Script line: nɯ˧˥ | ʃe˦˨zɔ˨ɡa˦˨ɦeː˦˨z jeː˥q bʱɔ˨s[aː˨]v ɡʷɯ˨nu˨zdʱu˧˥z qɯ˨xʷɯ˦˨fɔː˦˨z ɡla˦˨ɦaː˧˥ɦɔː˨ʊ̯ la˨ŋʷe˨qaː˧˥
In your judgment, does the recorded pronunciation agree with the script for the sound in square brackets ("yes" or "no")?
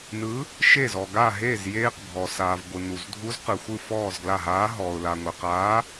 yes